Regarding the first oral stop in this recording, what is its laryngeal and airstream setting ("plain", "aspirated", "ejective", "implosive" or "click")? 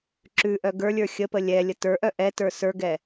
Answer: click